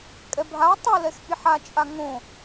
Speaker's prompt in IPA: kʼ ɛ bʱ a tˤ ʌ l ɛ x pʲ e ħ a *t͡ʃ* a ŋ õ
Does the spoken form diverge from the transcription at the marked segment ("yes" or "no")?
yes